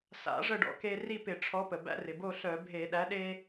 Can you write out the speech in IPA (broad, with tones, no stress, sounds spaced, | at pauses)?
s a̰˨˥ ʐ ə˥˨ ɖ ɔ̰˨˥ k e˦ r i˥˨ p ɪ˧˩˧ ʈ͡ʂʰ ɔ˨˥ p ə˩ b æ̰˦ r ɪ˩ b o˥˨ ɬ œ˧˩˧ bʱ e˧˩˧ ɗ æ˨˥ ɗ e˦